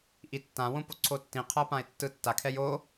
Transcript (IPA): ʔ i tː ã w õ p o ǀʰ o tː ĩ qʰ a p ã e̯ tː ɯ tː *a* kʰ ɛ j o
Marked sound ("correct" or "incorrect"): correct